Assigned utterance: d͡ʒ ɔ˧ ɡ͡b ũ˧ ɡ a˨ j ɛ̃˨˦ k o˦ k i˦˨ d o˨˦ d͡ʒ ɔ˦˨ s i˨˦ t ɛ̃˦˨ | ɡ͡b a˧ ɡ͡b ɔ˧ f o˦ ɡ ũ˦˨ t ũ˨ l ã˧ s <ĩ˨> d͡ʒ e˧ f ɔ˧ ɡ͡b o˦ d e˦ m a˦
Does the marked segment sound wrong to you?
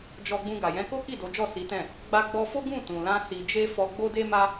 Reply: yes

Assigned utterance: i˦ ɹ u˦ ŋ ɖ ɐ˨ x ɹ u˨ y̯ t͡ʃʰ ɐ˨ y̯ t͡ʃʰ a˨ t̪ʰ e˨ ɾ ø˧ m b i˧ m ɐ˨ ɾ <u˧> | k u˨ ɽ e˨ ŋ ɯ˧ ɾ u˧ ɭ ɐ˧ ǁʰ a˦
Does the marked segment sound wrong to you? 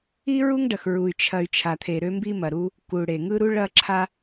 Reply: no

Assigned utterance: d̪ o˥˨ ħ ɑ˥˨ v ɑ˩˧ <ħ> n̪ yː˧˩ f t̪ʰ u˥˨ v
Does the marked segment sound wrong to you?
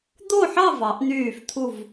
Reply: yes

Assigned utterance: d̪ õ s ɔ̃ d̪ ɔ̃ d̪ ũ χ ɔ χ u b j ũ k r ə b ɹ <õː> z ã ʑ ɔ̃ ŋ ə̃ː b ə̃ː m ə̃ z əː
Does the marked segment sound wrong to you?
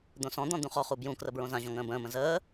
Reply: yes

